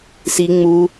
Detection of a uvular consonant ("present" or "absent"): absent